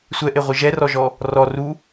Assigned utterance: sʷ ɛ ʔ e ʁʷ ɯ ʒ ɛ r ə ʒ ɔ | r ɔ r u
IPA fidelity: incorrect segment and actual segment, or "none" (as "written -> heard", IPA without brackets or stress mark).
ə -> ɔ